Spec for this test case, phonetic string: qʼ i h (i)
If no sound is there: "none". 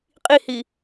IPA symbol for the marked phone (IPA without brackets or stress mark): i